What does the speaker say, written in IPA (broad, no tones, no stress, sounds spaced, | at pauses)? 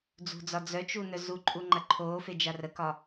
d͡z ṳ d͡z ɒ d͡z œ t͡ʃ u n œ z u ǃʼ u ŋ͡ǃ ɐ ǃʰ oː f e d͡ʒ a r ə k ɒ